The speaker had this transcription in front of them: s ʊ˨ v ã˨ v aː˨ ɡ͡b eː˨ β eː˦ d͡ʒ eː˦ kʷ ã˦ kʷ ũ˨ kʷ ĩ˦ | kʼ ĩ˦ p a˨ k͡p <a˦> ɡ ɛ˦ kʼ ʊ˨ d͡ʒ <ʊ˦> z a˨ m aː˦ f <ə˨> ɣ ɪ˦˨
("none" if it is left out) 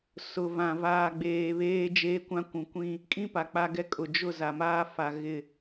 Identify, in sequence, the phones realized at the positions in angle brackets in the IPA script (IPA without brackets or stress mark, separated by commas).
a˦, ʊ˦˨, a˨